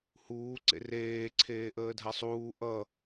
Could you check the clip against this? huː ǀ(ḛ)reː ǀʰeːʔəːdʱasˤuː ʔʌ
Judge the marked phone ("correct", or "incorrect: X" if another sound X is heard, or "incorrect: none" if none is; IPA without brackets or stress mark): correct